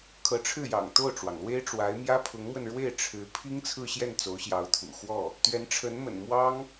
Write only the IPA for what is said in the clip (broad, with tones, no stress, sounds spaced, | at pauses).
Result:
kʰ ɤ˧˥ ʈ͡ʂʰ ɻ̩˥˩ j ɑ̰˨˩ ŋ t̪ o˥˩ ʊ̯ ʈ͡ʂ w ɑ˩ ŋ l w e˥ ɪ̯ ʈ͡ʂ w a˧˥ ɪ̯ m j ä˥ pʰ ʊ˧˥ ŋ m w ə˧ n ɻ w e˥˩ ɪ̯ ʈ͡ʂʰ ɻ̩˧˥ pʰ i˥ ŋ t͡sʰ ɹ̩˥˧ ɕ j ɛ˥˩ n t͡s o˧˥ ʊ̯ ɕ j ɑ˧˥ ʊ̯ t̪ʰ ṵ˨˩ x w ɔ˥˩ | t̪ ɥ ɛ˧˥ n ʈ͡ʂʰ ə˧˥ n m ə̰˨˩ n m w ɑ˥ ŋ